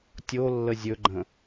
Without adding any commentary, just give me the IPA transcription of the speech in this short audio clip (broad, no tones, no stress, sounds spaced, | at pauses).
tʲ o lː ə zʲ ɵ ɡ͡ǃ ə̃